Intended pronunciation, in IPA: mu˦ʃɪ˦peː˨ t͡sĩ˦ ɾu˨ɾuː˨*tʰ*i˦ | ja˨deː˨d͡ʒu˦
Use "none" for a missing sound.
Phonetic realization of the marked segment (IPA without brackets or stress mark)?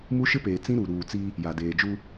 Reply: t͡s